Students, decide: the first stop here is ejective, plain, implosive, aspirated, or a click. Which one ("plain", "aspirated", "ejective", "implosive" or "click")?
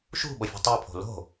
implosive